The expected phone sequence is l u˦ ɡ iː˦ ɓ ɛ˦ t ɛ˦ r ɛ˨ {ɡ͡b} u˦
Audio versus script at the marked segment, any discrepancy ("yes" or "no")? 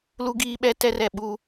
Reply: yes